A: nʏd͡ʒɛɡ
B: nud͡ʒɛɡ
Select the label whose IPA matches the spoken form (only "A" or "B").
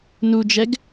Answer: B